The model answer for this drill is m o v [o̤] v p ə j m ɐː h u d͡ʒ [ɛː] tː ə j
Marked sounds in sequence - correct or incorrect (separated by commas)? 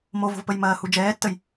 correct, correct